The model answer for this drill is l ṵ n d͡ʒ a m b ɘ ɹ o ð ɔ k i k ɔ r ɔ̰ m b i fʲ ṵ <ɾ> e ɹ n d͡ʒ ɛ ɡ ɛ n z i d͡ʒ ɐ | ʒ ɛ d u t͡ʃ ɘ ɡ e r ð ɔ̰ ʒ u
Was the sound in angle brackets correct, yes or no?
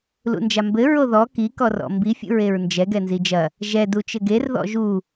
no